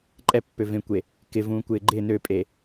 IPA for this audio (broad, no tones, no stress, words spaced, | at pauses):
ǃʼɛpːøvẽkʷe | kɪvũːkʷɪː ɡ͡ǃɪ nøpʼe